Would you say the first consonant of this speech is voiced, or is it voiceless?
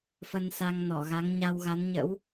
voiceless